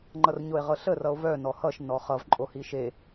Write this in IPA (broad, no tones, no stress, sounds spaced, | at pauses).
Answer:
ŋ͡ǃ ʌ r ɲ o e̯ ʁ ɤ ɬ ə r ʌ o̯ v œ n ɔ h ʌ ʃ n ɔ χ ʌ v ǃʼ o h i ʃ e